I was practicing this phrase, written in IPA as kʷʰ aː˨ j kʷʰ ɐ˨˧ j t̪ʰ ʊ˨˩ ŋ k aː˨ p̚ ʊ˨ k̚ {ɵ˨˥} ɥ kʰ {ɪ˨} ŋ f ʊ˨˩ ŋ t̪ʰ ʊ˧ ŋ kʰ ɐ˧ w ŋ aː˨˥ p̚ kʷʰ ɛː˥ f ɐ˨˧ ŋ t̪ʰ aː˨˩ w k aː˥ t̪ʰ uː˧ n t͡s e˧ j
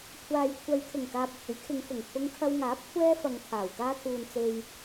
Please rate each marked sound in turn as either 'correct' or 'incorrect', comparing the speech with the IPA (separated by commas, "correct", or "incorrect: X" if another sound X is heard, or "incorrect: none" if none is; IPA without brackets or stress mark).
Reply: correct, incorrect: ɪ˨˧